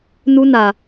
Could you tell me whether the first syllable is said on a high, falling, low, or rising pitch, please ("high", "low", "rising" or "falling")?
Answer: high